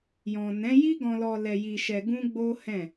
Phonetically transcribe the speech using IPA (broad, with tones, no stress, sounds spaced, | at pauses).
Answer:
j ɔ̃˨ n ɛ̃˨˦ j i˦ ɡ ɔ̃˧ l ɔ˧ l ɛ˧ j i˧ ʃ ɛ˧ ɡ ũ˦ ɡ͡b o˦ h ɛ̃˦˨